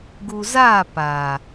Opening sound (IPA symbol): ɡ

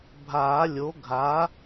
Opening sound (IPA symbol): bʱ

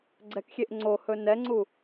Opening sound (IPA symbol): ɡ͡ǀ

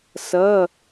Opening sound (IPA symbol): s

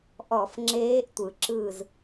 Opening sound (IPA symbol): ʔ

